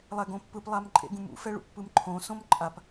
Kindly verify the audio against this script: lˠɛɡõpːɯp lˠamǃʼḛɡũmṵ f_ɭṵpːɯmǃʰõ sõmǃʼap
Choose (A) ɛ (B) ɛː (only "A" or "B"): A